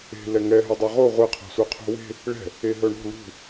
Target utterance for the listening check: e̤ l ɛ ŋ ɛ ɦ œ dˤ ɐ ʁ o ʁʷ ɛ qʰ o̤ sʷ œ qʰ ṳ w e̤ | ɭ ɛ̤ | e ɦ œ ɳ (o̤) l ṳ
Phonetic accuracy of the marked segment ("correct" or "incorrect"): correct